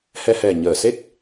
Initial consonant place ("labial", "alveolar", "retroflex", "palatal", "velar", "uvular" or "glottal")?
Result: glottal